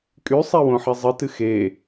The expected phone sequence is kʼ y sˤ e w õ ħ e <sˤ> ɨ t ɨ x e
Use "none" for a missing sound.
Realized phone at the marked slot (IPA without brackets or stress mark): zˤ